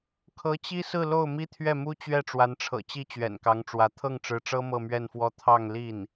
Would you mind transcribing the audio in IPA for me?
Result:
kʰ ɤ˧˥ t͡ɕ i˥ s ɹ̩˥˧ l o˥˩ ʊ̯ m i˥ t̪ʰ ɥ ɛ˥˩ m u˥ t͡ɕ ɥ ɛ˥˩ ʈ͡ʂ w a˧˥ n ʈ͡ʂʰ ɤ̰˨˩ t͡ɕ i˥˩ t͡ɕ ɥ ɛ̰˨˩ n k ɑ˧˥ ŋ ʈ͡ʂ w ä˧˥ t̪ʰ ɤ˥˩ ŋ ʈ͡ʂ ɻ̩˧˥ ʈ͡ʂ ɤ˥ m ɤ˥˧ m ɥ ɛ˥˧ n f w ɔ˥˧ t̪ʰ ɑ˥˧ ŋ l i˥˩ n

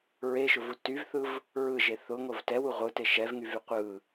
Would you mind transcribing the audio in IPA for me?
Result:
ɹ e ʃ ʊ v u t y v θ ɯ v | ɹ ɯ ʒ e θ ʊ ŋ o v t ɛ w u ʁʷ ɯ t e ʃ ɛ v ŋ y v y qʷ ɯ

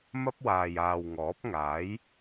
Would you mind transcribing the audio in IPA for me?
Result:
m ɐ˥ p̚ w aː˨ j aː˨ w ŋ ɔː˨˥ p̚ ŋ aː˨˥ j

